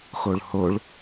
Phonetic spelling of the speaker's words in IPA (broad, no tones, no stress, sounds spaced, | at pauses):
x o ɭ h o ɭ